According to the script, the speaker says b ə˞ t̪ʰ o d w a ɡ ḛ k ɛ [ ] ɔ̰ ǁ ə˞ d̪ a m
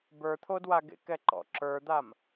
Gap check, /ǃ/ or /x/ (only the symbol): ǃ